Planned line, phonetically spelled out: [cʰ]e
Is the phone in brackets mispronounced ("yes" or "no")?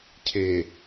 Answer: no